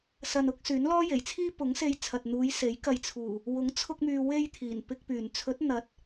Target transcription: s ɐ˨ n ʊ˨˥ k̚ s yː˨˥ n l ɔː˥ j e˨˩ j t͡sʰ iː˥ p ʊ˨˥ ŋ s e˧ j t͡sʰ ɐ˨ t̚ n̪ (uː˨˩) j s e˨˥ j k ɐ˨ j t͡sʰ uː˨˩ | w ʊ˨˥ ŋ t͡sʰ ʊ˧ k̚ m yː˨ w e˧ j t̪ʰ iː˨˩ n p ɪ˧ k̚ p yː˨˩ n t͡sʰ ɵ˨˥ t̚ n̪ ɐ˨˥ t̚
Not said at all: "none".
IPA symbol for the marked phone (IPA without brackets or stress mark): uː˨˧